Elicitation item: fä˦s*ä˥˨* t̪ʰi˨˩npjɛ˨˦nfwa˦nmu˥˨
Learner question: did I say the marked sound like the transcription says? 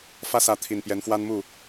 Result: no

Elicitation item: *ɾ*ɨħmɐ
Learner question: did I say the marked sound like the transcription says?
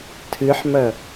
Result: no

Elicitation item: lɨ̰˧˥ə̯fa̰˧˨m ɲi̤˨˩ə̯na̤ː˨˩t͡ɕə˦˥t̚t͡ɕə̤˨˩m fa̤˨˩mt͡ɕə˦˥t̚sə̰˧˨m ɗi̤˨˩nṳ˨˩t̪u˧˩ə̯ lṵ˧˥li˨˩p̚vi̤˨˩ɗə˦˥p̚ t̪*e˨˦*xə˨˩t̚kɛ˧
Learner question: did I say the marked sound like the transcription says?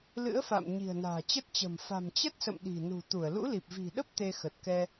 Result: no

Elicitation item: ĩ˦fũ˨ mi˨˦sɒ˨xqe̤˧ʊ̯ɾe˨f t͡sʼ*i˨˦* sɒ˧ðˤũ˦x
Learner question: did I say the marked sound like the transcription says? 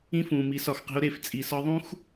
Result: no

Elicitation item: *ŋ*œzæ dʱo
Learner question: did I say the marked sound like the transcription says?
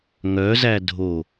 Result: yes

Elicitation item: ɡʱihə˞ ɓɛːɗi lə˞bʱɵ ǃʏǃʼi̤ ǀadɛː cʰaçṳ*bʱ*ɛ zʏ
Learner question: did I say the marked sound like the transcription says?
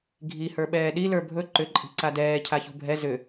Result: yes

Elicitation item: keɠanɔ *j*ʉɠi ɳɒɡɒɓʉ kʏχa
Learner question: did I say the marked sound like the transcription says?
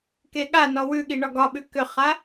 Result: no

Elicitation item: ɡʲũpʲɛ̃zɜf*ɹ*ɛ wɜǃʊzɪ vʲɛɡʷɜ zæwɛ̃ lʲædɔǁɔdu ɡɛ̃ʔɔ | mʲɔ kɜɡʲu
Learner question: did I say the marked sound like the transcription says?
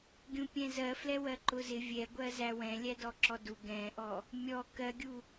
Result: no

